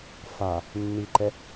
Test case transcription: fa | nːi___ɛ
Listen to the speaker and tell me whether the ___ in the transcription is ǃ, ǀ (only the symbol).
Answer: ǃ